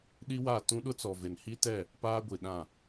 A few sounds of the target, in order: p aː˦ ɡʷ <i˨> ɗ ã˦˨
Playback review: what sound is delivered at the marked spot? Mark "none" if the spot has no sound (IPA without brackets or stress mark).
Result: i˨